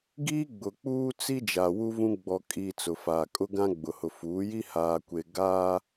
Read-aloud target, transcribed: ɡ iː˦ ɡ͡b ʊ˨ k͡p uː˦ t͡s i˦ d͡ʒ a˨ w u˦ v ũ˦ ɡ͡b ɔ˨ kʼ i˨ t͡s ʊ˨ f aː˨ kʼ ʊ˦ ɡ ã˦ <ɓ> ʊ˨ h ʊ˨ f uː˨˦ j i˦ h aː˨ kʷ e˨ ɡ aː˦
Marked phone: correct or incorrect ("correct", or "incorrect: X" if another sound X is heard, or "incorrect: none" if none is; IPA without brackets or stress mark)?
incorrect: ɡ͡b